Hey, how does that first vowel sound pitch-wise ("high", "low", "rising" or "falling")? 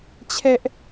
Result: high